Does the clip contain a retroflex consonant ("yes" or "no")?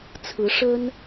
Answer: yes